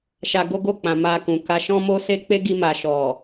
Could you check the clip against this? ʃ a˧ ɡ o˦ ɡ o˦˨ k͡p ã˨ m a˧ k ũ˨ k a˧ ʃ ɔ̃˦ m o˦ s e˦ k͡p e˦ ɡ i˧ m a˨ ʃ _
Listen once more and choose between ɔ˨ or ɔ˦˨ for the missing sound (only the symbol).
ɔ˨